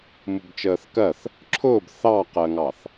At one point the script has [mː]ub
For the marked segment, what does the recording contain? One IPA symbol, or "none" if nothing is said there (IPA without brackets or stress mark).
m